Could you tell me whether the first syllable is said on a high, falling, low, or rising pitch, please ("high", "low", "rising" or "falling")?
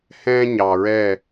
high